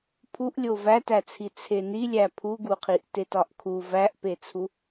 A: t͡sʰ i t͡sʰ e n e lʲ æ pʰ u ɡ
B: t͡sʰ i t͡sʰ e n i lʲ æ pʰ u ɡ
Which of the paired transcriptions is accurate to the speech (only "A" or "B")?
B